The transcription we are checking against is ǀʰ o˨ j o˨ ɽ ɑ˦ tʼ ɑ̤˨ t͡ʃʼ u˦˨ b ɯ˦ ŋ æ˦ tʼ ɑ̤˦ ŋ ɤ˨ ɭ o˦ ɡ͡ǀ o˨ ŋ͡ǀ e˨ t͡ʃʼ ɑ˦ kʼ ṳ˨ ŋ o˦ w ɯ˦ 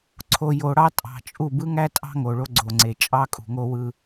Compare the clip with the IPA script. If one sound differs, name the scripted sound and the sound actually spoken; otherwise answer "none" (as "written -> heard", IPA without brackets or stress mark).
ɤ˨ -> o˨